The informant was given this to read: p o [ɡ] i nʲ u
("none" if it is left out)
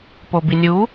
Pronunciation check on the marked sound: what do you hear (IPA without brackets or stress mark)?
b